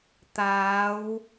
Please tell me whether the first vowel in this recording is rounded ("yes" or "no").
no